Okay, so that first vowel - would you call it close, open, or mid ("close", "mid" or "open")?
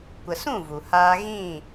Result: mid